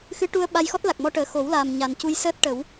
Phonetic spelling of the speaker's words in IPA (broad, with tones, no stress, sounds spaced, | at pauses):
x ɨ˧˥ ʈ u˧ ə̯ ɓ a˧ j x ɔ˦˥ t̚ l a˨˩ k̚ m ɔ˧ ʈ əː˨˩ x o˨˩˦ w l aː˨˩ m ɲ a˨˩ n c u˧ j s əː˦˥ t̚ ʈ ə˨˩˦ w